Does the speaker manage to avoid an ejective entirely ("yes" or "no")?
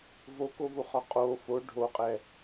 no